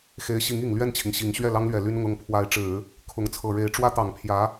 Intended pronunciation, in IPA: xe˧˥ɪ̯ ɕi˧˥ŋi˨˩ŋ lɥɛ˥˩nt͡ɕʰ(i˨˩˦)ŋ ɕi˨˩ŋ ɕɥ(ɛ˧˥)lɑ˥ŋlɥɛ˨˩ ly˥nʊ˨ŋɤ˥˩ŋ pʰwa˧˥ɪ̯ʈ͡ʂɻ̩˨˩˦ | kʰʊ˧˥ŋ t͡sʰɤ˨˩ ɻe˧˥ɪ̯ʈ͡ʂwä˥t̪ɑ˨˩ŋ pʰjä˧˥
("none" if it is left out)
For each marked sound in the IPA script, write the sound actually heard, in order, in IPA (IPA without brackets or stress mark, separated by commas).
i˩, ɛ˥˩